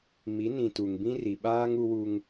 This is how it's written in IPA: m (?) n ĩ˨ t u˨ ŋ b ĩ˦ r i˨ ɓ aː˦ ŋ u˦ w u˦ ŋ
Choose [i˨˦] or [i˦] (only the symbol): i˨˦